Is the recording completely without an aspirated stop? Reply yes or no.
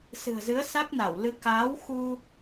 yes